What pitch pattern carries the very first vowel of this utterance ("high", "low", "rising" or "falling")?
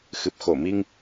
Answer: low